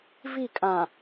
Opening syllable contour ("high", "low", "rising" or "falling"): falling